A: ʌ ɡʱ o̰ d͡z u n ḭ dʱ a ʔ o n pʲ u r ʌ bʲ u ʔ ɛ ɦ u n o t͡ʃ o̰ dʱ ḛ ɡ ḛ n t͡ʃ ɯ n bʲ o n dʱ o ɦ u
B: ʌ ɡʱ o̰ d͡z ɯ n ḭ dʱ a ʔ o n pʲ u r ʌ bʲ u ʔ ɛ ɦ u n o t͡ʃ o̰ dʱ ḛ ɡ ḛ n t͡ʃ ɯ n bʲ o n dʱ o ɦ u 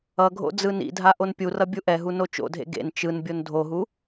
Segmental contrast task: B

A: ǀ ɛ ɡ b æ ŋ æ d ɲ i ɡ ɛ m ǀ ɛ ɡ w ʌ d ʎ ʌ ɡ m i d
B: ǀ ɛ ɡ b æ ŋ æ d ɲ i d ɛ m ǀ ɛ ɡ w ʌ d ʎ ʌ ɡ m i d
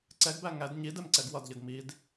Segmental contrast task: B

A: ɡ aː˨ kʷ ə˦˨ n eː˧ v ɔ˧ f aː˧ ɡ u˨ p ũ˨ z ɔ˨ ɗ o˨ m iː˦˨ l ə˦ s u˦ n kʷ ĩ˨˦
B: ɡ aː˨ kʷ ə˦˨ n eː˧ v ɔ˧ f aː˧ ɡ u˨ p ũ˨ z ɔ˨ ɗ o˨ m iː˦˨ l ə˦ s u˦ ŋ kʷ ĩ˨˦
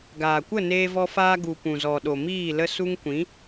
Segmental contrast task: B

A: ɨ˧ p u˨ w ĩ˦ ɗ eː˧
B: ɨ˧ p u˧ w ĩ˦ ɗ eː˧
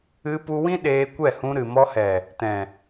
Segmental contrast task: B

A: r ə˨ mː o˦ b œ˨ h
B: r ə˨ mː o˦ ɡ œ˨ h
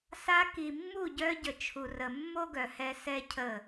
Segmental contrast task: B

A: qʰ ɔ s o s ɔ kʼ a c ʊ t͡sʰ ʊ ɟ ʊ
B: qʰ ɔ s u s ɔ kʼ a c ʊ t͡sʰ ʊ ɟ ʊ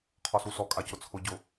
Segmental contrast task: B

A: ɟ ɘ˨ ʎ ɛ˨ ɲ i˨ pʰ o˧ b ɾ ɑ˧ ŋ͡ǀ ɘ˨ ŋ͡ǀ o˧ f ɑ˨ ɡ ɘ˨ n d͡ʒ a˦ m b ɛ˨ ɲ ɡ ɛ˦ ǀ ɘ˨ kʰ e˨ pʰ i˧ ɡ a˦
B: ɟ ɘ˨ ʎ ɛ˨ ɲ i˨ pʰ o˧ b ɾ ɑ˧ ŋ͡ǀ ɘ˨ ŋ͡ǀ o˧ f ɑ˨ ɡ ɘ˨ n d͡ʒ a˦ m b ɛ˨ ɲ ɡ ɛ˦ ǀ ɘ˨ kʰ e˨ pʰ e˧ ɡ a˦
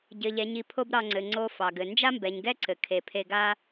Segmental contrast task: B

